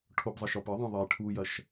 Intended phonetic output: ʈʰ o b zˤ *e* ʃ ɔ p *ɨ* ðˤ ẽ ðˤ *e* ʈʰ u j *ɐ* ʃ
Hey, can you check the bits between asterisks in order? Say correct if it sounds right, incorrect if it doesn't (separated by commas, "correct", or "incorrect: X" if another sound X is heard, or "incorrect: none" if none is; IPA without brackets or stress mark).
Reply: incorrect: ɘ, correct, correct, correct